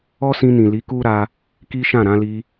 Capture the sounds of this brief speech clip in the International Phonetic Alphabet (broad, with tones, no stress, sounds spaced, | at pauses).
ɔ˦ s ĩ˧ n ĩ˨ l i˨˦ k u˦ ɾ a˧ | k i˦ ʃ ã˦˨ ɾ ã˧ l i˧